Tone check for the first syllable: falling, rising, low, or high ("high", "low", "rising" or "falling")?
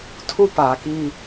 high